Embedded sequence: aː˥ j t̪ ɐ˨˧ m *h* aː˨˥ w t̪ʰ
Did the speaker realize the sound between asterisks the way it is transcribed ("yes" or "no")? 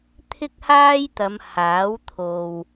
yes